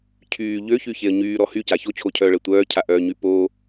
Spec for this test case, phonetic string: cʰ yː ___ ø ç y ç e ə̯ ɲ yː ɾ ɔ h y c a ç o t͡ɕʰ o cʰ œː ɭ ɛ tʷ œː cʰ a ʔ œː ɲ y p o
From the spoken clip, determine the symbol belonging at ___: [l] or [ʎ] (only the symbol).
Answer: ʎ